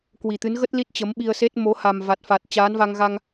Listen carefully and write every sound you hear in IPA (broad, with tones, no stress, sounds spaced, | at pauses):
k w i˨˩ t̪ ɨ˨˦ n ɣ ə˦˥ t̚ l i˦˥ t̚ t͡ɕ ə˨˦ m ɓ i˧ ə̯ s e˦˥ t̚ m o˨˦ h a˨˩ m v a˨˩ t̚ f a˨˩ t̚ t͡ɕ aː˨˦ n v a˧ ŋ ɣ a˧ ŋ